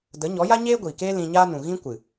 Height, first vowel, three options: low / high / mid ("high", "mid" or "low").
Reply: mid